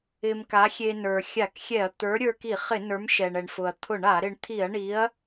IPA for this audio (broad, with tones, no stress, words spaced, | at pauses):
ɪ˧mka˨˥xʲe˧ nə˞˩ xʲa˧˩˧kxʲɛ˧˩˧ɐ̯t̪ə˞˨˥ ɾʲə˞˧ki˧˩˧χɪ˧˩˧ nə˞˨˥mʃɛ˩ɳɛ˩ɳfʊ˩ɐ̯ t̪ʰʊ˧˩˧ɳa˧˩˧ɾɪ˧ɳ t̪ʰi˧˩˧ɐ̯ɳi˨˥ɐ̯